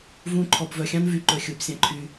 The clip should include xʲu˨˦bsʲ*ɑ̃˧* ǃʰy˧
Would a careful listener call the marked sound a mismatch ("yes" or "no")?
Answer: no